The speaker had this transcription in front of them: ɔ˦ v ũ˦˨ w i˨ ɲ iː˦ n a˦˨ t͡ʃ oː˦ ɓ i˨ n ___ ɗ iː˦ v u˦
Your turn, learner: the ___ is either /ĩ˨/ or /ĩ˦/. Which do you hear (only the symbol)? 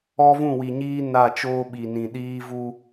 ĩ˨